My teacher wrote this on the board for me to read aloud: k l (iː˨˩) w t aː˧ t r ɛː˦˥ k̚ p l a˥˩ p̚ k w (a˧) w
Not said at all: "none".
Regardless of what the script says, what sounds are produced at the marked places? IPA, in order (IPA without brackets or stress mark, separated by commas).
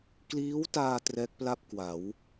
iː˦˥, a˩˦